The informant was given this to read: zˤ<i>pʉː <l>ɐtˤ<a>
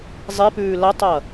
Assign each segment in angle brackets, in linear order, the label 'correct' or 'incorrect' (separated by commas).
correct, correct, incorrect